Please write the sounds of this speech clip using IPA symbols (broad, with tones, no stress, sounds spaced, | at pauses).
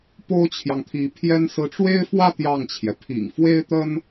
p o˥ ʊ̯ t͡ɕʰ j ɑ˨ ŋ t̪ʰ i˧˥ pʰ j ɛ˥ n s ɹ̩˧˥ ʈ͡ʂ w e˥ ɪ̯ f w ä˥˧ t̪ j ɑ˥˩ ŋ t͡ɕʰ j ɛ˩ pʰ ḭ˨˩ ŋ f w e˥ ɪ̯ t̪ ə˥ n